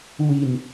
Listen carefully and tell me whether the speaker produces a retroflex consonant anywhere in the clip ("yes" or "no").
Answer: no